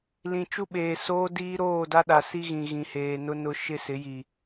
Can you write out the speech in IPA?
l ĩ˨ t͡ʃ u˦ ɓ eː˨ s oː˦ d iː˦ ɾ oː˦˨ d a˦ ɗ a˨ s i˦ ɣ ĩ˨ ɣ ĩ˨ h eː˨ n ʊ˦ n ʊ˦ ʃ ɪ˦ s ɪ˨˦ j i˨

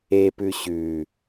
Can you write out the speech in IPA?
e p ʉ ɕ ʉ

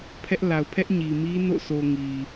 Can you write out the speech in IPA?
pʰ ɛ˦ ʔ l a˨ ʊ̯ pʰ ɛ˦ ʔ ɲ i˨ m i˦ n o̰˦˨ sʰ o˨ ŋ i˨

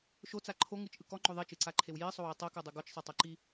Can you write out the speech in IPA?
ʃ o t͡s a ǃʰ o ŋ ɯ t͡ʃ ʔ ɯ k ɔ ŋ͡ǃ o ðˤ i t͡ʃ ɯ ǀ a ǃʰ e w j i sˤ o w e tˤ ɤ k ɤ dˤ ɤ ɡ ɔ t͡ʃ sˤ ɤ tˤ o ǃ i

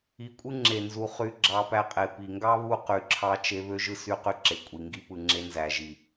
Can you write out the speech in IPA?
i˨ kʷʼ ɯ˦ ŋ͡ǁ e˨ n z u˨ χ y˧ ɡ͡ǁ ɑ˧ p æ˧ qʼ e˨ p i˨ ŋ ɡ ɑ˦ β u˦ q y˨ ǁʰ ɑ˧ t͡ʃ e˧ β ø˧ ʒ ɯ˧ s y˧ q y˧ ǁ e˨ kʷʼ i˨ ŋ ɡ i˧ p ɯ˨ ŋ͡ǁ e˧ n z æ˨ ʒ i˨

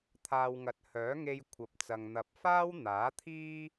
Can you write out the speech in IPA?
t̪ʰ aː˨ w ŋ ɐ˨ t̚ h œː˨˥ ŋ e˧ j kʷʰ ɐ˨ p̚ t͡s ɐ˨ ŋ n̪ ɐ˨ p̚ f aː˥ w n̪ aː˨˥ t̪ʰ iː˥

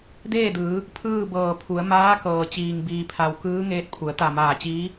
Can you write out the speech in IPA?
d eː˥˨ d ɯː˩˧ | pʰ ɯː˥˨ b ɤː˧˩ pʰ u˩˧ ə̯ m aː˧˥ k ɤː˩ t͡ɕ iː˩ ŋ b iː˩ pʰ a˩ w k ɯː˧˥ ŋ eː˧˥ t̚ pʰ u˩˧ ə̯ t̪ a˧˩ m aː˧˩ t͡ɕ iː˧˥

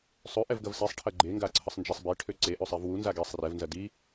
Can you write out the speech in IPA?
sˤ ø ʔ ɛ v ɡ ɐ v s i sˤ ʈʰ ɐ ɡ͡ǃ e ŋ ɡ a ǀʰ ə sˤ n d͡ʒ ɛ sˤ b e ʈʰ ø ǀ e ʔ ø sˤ i v w u n z a ɡ e sˤ r ɛ v n z ɐ d i

